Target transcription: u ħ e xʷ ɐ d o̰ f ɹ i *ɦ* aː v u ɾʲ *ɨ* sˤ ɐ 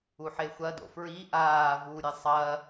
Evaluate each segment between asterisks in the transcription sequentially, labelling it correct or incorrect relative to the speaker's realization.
incorrect: ʔ, correct

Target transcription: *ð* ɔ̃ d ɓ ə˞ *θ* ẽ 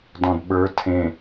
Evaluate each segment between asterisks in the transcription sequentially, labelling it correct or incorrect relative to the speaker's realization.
incorrect: d, incorrect: tʰ

